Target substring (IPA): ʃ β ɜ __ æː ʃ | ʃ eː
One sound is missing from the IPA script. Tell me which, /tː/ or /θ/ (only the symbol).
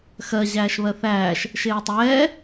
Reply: θ